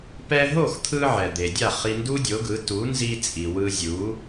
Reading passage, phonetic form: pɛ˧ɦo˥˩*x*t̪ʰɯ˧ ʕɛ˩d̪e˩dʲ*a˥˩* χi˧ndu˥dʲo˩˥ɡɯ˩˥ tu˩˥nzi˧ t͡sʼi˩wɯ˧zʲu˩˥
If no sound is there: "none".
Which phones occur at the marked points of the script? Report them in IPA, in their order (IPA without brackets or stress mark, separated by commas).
x, a˥˩